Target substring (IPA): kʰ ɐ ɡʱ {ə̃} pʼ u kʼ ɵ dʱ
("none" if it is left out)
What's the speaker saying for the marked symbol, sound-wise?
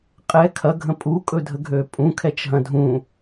ə̃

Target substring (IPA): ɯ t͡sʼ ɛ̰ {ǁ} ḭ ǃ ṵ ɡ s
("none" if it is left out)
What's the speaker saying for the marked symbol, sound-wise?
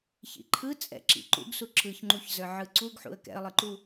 ǁ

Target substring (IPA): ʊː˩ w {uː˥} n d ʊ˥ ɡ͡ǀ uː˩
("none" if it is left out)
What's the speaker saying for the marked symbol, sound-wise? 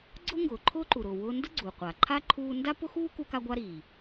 ʊː˥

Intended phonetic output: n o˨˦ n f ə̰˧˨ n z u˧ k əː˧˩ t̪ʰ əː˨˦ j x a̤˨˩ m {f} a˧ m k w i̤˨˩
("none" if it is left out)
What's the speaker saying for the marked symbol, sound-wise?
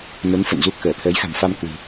f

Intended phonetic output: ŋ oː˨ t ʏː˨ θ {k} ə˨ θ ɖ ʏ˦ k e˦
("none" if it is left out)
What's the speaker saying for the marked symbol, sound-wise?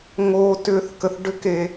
k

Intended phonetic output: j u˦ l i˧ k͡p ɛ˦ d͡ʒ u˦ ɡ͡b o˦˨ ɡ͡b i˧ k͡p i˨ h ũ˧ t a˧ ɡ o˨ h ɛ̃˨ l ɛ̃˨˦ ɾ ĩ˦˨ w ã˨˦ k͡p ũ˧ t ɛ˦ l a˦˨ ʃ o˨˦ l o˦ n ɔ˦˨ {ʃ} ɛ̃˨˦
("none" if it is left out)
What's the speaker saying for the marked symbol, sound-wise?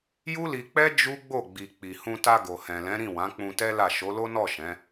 ʃ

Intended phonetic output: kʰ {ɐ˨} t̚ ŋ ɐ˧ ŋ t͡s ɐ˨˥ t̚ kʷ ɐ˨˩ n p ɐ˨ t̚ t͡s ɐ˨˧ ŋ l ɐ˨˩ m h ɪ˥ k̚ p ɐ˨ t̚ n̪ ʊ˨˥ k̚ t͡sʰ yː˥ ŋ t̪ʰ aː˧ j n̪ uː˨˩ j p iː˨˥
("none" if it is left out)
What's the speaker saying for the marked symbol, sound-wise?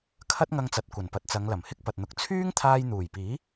ɐ˥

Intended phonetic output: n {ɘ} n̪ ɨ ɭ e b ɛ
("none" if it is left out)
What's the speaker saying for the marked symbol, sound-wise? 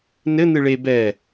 ɘ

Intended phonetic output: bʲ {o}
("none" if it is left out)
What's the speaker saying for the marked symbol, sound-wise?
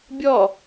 ɔ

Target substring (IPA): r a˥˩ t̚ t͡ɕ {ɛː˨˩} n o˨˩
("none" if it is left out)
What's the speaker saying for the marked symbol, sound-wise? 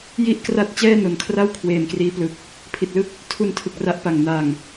ɛː˥˩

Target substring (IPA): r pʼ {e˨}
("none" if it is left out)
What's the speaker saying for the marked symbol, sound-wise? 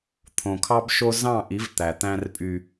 y˨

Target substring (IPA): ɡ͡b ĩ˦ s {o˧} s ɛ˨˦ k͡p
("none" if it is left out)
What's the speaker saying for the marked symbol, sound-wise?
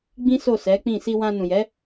o˦˨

